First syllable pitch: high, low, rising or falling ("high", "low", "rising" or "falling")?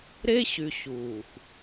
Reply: high